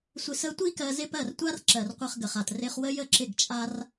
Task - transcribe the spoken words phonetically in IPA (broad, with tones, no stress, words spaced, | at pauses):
sʷɪ˧sə˦ tʷi˦ kɜ˧zɪ˦pɜ˦˨r tʷa˦r ǁɜ˨rqʷɜ˧χɡə˨χa˨t rɪ˧χwə˦ jə˦˨ǁɪ˦˨ɡt͡ʃʼa˦r